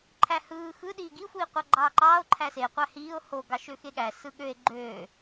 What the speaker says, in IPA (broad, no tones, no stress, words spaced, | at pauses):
ǃʰæhɯː xɯ ɗiːɡi xʷiːqʷɑɡ͡ǃɑːǃɑːo̯ ǃʰæse qʷæhiːo̯ ho ɡɑʃøxeɠæ sɯɠøe̯ ɡ͡ǃø